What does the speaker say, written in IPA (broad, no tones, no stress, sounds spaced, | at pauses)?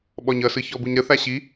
ɓ ɔ ɲ ʌ s ɯ ç ɔ b u ɲ ɾ ə θ a ɕ i